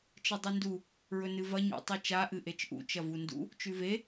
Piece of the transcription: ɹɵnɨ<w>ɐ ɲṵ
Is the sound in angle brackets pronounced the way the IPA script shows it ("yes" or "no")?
no